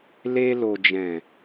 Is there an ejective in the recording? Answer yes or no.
no